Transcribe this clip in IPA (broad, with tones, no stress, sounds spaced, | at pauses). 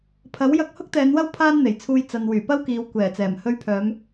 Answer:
pʰ ɐ˨˥ w j ɐ˧ k̚ h ʊ˥ k̚ t̪ ɛː˨˧ n w ɐ˥ w pʰ aː˥ n n̪ e˨˩ j t͡sʰ uː˧ j t͡s ɐ˨ n w yː˨˩ p ɐ˥ w k iː˨ w kʷ ɛː˨˩ t͡s ɛː˨˩ m h ɵ˧ ɥ pʰ œː˨˧ m